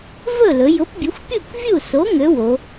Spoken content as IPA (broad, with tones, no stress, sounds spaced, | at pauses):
v ɵ˥˨ l ɵ˩˧ j ʊ˨˥ p bʲ ø˨˥ xʷ pʲ u˥˨ k vʲ u˥˨ s o˨˥ ŋ ø˨˥ w o˩˧